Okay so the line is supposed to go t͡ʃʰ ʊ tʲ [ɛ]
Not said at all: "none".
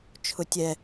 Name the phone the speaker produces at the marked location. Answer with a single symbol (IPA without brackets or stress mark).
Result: ɛ